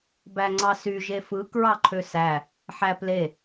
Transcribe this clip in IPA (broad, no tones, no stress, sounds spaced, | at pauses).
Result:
b æ ŋ͡ǀ ɑ s y ʒ e f ɯ k ɹ ɑ ǃʰ ø s æ | ħ æ p l e